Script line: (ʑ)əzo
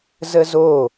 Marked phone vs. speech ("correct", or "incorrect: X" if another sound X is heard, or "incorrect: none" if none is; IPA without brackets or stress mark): incorrect: z